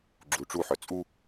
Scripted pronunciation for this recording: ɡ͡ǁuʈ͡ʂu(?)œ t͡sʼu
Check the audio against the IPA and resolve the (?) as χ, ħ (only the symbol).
ħ